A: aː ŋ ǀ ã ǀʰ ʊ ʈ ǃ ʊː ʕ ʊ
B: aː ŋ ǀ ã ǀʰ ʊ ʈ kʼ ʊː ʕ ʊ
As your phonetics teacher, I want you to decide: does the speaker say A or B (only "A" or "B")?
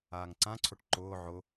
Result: A